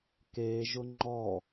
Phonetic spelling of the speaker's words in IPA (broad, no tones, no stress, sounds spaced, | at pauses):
k e ʒ ʊ ŋ͡ǃ ɔ